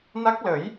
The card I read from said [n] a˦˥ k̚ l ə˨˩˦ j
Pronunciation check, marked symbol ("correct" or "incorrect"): correct